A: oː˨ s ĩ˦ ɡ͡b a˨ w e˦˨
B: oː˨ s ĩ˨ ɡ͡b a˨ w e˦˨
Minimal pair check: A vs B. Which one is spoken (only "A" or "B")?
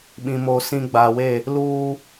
A